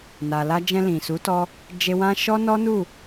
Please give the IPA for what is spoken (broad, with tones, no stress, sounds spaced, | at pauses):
n a˨ l a˧ d͡ʒ ɛ̃˧ l ĩ˨ s u˨˦ t ɔ˧ | d͡ʒ e˧ w ã˦ ʃ ɔ˦ n ɔ˦ n u˦˨